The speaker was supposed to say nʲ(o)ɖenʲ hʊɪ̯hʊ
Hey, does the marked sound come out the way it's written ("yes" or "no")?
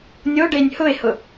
yes